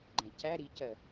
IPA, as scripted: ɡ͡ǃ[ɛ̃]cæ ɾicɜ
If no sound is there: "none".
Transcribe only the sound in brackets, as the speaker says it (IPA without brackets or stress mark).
ɛ̃